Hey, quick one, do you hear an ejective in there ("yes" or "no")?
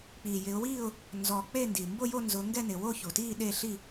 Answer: no